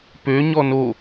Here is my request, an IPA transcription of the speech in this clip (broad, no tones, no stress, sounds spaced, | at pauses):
p ø ɲ ɔ n o